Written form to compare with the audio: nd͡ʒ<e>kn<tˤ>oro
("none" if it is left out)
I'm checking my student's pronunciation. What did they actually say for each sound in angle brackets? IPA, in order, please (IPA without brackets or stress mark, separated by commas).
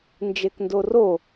e, d